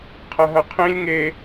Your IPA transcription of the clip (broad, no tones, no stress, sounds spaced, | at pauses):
qʰ ɐ ɦ ɐ qʰ ĩ lʲ ŋ e